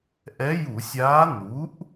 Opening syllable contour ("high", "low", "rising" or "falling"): rising